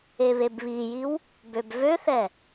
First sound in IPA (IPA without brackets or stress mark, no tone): e